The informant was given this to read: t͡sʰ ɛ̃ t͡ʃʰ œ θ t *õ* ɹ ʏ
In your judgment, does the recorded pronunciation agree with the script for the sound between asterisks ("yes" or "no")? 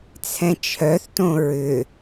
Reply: yes